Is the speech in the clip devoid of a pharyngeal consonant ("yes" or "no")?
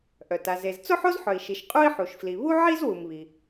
no